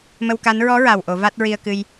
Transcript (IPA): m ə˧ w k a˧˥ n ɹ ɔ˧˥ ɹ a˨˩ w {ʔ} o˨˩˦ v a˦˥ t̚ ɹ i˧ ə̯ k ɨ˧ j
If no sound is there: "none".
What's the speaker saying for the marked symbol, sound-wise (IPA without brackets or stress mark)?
ʔ